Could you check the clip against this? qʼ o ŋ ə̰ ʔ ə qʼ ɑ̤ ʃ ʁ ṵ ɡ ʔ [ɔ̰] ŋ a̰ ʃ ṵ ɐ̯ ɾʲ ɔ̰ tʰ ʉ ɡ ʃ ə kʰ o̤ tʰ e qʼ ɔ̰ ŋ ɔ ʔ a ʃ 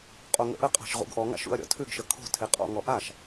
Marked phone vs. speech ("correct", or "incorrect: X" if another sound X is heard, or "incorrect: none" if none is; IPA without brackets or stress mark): incorrect: ɔ